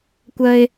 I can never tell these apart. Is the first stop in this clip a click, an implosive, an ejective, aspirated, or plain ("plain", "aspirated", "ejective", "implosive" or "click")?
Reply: plain